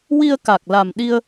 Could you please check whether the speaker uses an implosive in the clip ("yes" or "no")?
yes